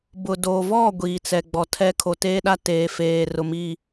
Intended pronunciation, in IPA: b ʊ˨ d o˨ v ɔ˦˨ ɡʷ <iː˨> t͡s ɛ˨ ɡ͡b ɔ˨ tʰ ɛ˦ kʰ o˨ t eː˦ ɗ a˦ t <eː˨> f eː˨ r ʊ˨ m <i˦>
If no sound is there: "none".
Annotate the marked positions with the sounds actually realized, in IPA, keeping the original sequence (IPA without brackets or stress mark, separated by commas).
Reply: iː˨, eː˨, i˦˨